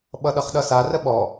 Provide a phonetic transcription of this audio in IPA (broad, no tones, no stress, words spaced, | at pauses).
ɓʌɗʌχɗʌsa rəɓɔ